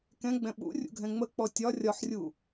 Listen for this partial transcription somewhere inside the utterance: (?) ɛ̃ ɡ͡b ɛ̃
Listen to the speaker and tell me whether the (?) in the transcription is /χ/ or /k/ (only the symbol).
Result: k